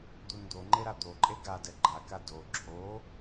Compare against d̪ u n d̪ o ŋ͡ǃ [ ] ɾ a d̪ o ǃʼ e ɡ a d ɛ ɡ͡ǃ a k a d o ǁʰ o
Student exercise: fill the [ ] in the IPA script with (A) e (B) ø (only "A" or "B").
A